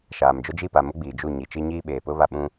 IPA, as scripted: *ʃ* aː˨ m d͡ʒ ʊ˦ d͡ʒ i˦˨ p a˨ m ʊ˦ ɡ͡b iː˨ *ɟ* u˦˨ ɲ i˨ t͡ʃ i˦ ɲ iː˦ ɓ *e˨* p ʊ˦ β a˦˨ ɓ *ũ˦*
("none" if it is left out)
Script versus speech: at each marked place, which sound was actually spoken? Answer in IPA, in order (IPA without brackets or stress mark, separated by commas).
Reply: ʃ, d͡ʒ, eː˨, ũ˦